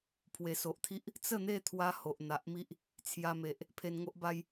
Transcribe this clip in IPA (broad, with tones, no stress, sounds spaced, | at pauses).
pʰ w e˨˩ s o˨ ʔ t̪ʰ i˦ ʔ | t͡s ə˥˧ n̪ e˥˧ t̪ʰ w a˧ h o˨ ʔ n̪ a˨ ʔ m i˦ ʔ | t͡sʰ j a˧ m e˨ ʔ | pʰ e˧ n ŋ o˦ ʔ b a˦ j